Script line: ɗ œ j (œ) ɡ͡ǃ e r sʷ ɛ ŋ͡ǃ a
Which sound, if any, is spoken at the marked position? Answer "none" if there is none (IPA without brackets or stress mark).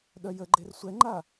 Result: ə